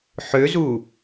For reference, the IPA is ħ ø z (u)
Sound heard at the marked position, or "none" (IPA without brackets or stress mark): u